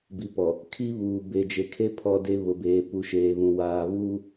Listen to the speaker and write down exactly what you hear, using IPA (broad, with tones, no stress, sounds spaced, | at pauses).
b i˨ p ɔ˨ | kʰ i˦ β uː˨ b e˨ d͡ʒ e˨ kʰ e˦ pʰ ɔ˦ d e˦ β ʊ˨ b eː˨ p u˨ ʃ eː˨ β ũ˨ w aː˨ β uː˦